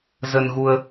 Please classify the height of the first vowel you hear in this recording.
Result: mid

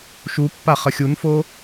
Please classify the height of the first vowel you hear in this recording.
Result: high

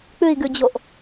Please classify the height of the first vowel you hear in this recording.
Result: high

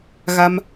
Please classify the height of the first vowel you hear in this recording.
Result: low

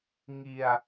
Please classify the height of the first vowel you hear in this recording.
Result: high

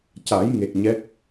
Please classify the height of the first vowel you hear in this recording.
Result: low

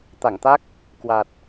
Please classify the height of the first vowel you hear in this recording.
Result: low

